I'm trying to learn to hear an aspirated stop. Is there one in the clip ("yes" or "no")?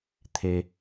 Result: yes